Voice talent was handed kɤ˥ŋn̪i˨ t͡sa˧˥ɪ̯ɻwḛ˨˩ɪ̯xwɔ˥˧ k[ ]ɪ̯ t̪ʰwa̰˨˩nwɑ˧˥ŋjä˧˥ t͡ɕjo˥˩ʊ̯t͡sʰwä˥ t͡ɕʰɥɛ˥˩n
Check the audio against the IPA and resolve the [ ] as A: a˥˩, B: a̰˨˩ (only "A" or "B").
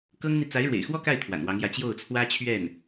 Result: A